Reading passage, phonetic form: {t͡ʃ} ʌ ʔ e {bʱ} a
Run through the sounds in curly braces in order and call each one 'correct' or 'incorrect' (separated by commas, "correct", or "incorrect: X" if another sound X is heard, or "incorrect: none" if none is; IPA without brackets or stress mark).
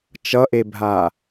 correct, correct